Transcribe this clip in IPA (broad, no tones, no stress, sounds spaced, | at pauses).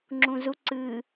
ŋ͡ǁ ũ z u ǀ ɨ